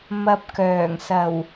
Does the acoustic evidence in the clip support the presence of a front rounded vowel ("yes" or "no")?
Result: yes